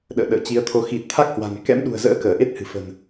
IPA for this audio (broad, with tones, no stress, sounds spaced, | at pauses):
ɗ ə̰ː˧˨ ɗ ə̰ː˧˨ t͡ɕ i˨˦ ə̯ t̪ʰ o˧ x i˨˩ t̚ t̪ʰ a˦˥ k̚ h w a̤˨˩ n k ɛ̰˧˥ m ɗ ṳ˨˩ ə̯ z ə̰ː˧˥ k əː˧˩ ʔ e˦˥ t̚ h ɨ̤˨˩ f ə̤˨˩ n